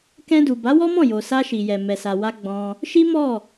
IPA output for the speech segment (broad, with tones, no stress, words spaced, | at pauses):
kɛ̃˧du˨ ba˨˦wɔ˦mɔ̃˦˨jo˨ sa˧ʃi˨jɛ˨ mɛ˨sa˨wa˧ ɡ͡bɔ̃˧ | ʃi˦mɔ˦˨